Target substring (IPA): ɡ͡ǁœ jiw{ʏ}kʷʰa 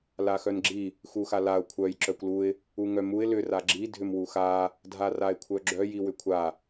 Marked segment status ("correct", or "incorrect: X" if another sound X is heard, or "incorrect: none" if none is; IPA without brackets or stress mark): correct